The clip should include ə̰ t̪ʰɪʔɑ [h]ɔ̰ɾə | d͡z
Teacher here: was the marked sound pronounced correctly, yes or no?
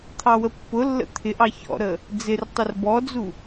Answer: no